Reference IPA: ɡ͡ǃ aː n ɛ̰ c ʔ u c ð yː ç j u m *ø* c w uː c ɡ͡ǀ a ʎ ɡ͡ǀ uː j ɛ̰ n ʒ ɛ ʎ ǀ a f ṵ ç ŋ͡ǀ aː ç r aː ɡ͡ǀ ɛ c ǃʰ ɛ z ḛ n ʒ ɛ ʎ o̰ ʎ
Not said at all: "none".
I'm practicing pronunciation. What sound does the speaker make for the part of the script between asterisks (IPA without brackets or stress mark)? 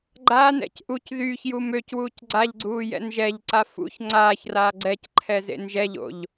ø